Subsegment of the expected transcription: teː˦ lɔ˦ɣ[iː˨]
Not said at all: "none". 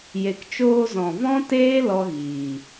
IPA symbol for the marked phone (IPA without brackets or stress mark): iː˨